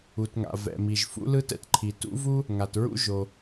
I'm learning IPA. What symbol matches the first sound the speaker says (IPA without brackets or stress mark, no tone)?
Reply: u